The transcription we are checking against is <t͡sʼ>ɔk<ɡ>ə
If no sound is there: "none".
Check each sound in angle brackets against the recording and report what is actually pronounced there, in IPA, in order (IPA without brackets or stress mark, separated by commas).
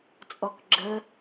t͡sʼ, ɡ͡ǁ